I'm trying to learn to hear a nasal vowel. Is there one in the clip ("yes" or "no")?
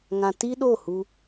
yes